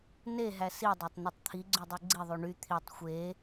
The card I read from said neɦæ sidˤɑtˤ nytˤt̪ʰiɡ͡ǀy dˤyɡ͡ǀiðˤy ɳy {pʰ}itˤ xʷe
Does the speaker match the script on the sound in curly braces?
no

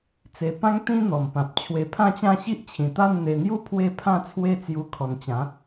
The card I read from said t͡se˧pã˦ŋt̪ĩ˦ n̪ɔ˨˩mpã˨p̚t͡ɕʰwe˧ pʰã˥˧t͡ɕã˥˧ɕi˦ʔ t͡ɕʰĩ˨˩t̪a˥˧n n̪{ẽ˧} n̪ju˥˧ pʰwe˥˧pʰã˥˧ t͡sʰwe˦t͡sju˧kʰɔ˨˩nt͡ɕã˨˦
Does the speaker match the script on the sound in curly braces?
no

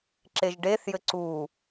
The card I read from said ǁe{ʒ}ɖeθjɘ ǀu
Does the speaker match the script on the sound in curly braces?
yes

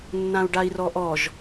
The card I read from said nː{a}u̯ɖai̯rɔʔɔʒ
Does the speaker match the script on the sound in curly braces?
no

